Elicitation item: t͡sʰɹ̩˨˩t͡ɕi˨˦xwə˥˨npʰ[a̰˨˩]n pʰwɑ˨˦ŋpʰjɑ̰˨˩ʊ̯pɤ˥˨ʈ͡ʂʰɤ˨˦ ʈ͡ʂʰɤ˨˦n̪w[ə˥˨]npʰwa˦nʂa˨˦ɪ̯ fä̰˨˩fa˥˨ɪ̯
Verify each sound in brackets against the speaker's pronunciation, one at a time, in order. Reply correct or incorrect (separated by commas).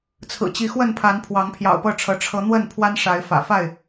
incorrect, correct